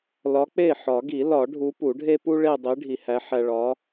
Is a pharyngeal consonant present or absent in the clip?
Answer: present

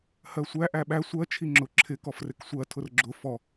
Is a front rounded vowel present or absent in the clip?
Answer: absent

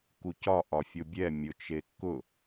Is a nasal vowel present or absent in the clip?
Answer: absent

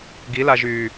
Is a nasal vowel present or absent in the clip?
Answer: absent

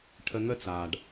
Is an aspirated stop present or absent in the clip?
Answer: present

